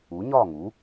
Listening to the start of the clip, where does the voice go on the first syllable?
rising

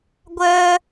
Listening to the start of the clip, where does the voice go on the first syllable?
high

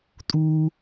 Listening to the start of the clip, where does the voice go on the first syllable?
high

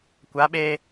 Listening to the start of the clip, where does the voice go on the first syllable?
rising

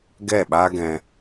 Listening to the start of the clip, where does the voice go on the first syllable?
falling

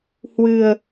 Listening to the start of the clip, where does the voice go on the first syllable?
low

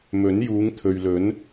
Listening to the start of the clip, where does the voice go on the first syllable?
rising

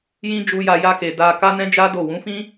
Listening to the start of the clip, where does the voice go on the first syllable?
high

